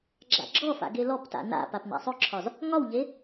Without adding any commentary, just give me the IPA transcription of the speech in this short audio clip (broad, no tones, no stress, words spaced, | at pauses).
ɡ͡ǁa̰ɡ͡ǁɔfa̰ ɡelɔpta̰ na̰ papna̰sˤɵǁʰɒz | ŋɒwʎe